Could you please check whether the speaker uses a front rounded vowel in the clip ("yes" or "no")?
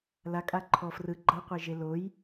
no